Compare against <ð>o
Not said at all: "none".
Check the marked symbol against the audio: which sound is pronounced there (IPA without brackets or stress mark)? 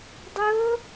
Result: dˤ